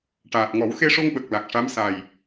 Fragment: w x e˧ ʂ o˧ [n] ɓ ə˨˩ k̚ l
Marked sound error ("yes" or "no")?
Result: yes